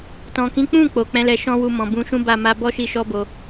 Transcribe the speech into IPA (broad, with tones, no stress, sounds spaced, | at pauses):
t ɔ̃˨ k ĩ˨˦ k͡p ũ˦˨ k͡p o˨ k͡p ɛ̃˨˦ l ɛ˧ ʃ ɔ̃˦ w u˧ m ɔ̃˨ b ũ˨˦ ʃ ũ˦ b a˦˨ m a˧ b ɔ˦ ʃ i˧ ʃ ɔ˦ b o˧